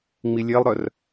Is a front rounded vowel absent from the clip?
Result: no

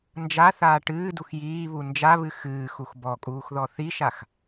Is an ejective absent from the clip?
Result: no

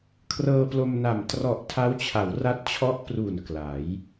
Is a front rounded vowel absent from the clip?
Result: yes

